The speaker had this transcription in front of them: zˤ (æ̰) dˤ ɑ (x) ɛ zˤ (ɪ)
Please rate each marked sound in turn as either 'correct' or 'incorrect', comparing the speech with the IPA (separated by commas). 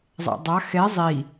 correct, correct, incorrect